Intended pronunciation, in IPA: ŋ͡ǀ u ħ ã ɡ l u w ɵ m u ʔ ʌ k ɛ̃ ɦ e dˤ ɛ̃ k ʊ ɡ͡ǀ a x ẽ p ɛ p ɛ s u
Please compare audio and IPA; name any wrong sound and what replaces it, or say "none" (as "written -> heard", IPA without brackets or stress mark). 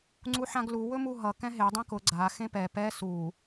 ʔ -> ɦ